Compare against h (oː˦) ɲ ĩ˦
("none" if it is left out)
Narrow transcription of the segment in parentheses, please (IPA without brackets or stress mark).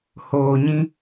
oː˨